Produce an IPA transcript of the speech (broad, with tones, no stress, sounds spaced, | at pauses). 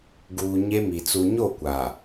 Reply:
ɡ uː˨ ɲ e˦ m i˨ t͡s u˨ ɲ o˦˨ kʷ a˨